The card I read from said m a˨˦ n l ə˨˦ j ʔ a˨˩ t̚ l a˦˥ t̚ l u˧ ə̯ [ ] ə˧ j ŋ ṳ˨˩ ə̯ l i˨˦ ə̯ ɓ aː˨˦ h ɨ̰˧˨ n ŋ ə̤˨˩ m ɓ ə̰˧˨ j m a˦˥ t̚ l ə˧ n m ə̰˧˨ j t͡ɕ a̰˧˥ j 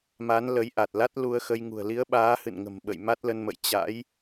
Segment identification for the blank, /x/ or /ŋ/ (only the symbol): x